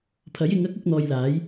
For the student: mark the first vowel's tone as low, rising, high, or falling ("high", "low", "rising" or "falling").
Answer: rising